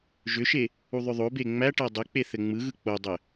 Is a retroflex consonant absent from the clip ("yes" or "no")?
no